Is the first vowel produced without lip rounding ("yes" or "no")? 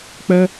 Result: yes